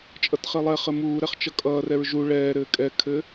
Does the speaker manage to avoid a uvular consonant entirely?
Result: no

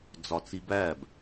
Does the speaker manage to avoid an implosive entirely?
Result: yes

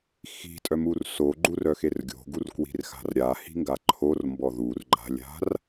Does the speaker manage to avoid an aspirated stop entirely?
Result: no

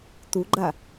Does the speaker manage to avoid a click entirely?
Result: no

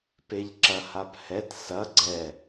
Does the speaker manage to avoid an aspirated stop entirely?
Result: yes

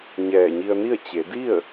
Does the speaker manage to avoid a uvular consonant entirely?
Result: yes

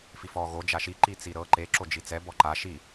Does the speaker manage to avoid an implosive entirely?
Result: yes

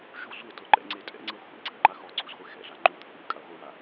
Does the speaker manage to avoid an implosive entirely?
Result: yes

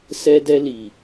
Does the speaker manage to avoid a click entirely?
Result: yes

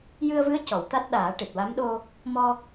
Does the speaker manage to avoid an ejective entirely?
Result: yes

